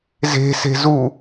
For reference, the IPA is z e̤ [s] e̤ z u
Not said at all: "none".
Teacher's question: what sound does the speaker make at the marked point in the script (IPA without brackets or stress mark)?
s